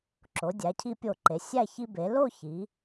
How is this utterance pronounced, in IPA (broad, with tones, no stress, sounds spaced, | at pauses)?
ǁ o˩˧ dʲ æ˩˧ cʰ i˧ pʲ o˧˩ ǃ e˩˧ sʲ æ˥˧ ç i˧ b e˩˧ l o˥˧ ç i˩˧